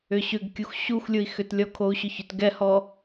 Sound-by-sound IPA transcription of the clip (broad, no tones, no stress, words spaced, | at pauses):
ʏɕʏɡ kʲuxɕux lʲui̯xʏtlʲɔkʰou̯ ɕʏçʏt ɡɛhɔ